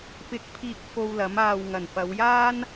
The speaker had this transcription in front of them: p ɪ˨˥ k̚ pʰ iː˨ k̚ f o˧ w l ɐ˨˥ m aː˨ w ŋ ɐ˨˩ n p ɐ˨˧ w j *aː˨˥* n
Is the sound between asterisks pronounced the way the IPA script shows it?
no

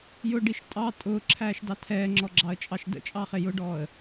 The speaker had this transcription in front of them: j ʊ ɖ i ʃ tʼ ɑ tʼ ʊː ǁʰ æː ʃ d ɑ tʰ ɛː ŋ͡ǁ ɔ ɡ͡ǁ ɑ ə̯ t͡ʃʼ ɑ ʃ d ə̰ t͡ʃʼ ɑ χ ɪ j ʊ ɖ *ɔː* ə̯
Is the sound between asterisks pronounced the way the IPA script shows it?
yes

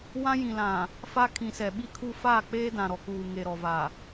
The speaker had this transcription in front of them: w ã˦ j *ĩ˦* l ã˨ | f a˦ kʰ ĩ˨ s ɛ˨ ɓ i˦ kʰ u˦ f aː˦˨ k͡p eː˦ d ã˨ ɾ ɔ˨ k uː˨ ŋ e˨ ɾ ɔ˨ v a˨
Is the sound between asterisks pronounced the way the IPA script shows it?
no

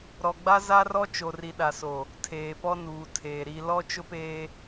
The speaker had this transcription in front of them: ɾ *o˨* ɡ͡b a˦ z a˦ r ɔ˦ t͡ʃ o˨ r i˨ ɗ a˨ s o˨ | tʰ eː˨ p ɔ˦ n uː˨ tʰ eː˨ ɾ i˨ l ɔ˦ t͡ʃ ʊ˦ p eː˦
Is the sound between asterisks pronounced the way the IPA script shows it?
no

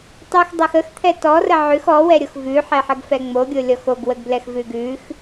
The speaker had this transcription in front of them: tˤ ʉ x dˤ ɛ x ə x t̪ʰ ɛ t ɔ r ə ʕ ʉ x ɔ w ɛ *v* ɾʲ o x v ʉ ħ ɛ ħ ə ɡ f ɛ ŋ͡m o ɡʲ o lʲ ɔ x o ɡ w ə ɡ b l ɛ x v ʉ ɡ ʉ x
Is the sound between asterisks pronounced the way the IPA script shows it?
no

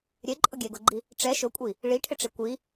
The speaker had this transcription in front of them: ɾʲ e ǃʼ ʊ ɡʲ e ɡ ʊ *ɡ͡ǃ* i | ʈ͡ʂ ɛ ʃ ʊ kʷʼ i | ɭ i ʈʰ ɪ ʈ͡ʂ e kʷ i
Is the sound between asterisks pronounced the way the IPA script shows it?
yes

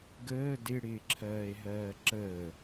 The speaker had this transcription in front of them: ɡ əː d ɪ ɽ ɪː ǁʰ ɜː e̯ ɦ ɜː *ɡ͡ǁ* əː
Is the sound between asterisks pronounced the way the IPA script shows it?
no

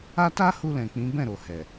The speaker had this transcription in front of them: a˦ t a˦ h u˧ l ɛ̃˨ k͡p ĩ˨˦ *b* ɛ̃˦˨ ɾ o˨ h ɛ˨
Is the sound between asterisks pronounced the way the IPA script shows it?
yes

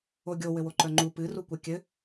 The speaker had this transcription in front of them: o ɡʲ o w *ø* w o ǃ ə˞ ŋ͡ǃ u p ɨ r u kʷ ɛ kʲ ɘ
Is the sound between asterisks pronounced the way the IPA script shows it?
no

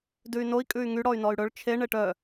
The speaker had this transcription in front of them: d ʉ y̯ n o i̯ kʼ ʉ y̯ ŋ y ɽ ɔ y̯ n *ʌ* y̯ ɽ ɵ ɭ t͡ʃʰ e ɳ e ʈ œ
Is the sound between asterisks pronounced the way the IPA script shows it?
no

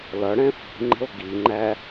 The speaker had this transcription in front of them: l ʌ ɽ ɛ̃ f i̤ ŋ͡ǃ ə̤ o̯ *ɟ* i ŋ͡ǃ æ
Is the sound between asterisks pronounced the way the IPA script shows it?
no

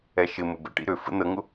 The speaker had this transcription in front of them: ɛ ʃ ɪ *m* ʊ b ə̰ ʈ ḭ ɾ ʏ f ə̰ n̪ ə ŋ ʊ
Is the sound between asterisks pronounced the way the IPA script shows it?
yes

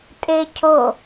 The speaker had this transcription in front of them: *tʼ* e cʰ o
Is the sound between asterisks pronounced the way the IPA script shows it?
yes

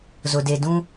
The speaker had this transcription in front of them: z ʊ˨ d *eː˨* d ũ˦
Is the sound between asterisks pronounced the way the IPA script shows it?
no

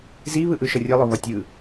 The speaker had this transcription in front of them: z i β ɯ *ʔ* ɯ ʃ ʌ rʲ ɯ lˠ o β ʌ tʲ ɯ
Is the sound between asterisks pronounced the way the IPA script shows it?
yes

